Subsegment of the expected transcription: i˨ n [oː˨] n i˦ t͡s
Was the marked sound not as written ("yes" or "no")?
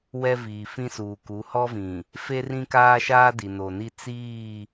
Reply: yes